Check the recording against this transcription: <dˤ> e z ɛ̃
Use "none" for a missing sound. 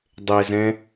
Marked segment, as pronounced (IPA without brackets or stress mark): dˤ